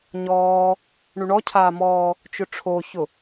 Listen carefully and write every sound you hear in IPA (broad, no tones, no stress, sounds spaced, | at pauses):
ɲ ɔː | ɳ u ɳ ɔ cʰ aː m ɔː | t͡ʃ ʊ ʈ͡ʂʰ o ç ʊ